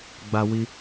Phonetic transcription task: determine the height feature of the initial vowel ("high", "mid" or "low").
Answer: low